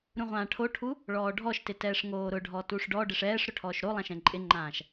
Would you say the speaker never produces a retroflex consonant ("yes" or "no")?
no